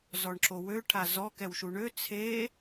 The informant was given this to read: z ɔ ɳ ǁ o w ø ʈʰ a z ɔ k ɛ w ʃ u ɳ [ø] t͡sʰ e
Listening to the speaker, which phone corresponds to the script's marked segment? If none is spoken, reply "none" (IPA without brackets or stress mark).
ø